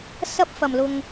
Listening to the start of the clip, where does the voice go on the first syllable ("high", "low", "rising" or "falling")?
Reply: high